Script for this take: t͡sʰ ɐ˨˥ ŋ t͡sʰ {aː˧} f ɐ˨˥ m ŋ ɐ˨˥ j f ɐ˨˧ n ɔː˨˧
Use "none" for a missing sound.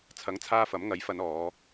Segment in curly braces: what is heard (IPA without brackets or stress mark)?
aː˧